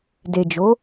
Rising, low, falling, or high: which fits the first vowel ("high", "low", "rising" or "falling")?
low